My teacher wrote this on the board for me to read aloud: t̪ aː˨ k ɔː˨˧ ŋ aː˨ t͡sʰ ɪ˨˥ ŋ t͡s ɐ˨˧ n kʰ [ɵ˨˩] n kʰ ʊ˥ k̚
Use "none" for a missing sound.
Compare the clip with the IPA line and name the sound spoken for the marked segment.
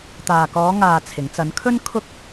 ɵ˥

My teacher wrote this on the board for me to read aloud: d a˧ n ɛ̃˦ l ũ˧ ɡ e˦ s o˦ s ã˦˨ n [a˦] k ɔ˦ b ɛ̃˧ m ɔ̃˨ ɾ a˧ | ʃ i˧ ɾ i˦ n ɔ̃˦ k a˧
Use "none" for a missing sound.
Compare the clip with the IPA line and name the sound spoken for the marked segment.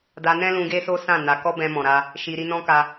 a˧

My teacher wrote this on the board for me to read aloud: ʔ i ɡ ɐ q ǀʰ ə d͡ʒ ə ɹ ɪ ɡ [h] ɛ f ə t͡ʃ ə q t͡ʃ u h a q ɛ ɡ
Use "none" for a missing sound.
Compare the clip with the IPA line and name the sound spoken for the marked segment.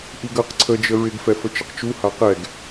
f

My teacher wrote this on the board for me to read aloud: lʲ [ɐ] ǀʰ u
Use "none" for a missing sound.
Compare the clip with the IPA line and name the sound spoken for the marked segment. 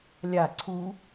a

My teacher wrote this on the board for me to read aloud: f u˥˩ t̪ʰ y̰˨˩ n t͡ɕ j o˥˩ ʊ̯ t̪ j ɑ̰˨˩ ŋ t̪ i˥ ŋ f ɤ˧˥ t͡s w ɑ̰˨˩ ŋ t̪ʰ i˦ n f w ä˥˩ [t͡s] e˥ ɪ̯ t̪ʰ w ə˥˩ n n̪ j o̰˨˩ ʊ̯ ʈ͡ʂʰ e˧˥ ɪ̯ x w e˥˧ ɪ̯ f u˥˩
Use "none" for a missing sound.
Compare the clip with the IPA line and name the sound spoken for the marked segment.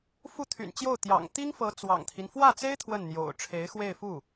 t͡s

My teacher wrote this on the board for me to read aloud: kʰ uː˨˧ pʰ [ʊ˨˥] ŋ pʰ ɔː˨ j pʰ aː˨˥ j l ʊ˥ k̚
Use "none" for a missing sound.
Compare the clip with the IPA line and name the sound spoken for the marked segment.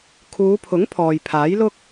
ʊ˨˥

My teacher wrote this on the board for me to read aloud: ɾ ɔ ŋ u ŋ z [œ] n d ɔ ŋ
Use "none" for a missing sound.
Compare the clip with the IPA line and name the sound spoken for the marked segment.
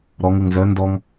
œ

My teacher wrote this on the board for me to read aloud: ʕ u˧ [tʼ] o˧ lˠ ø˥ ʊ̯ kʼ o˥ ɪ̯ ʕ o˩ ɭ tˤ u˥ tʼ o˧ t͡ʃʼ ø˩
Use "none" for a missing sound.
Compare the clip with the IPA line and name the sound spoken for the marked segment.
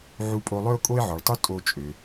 pʼ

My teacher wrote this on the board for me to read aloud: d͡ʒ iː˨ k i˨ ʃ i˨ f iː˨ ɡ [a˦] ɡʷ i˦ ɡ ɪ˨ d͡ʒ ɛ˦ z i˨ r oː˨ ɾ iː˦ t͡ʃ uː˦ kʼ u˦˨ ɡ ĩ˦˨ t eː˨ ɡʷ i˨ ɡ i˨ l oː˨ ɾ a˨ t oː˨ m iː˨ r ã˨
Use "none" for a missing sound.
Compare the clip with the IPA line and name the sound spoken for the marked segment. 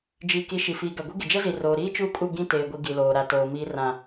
a˨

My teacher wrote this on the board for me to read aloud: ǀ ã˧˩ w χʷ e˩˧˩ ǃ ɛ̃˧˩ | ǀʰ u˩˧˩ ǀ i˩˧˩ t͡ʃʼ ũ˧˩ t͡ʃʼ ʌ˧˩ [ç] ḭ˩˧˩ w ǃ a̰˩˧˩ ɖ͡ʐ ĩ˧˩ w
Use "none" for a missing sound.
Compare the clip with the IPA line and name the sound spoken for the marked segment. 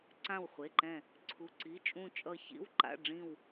ç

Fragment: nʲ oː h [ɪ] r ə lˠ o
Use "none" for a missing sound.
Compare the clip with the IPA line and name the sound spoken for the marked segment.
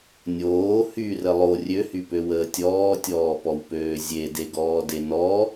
y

